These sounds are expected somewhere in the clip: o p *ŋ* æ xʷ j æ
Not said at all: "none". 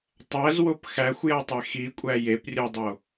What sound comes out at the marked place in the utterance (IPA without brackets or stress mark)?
x